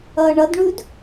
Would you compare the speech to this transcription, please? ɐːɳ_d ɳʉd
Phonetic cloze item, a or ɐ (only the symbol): ɐ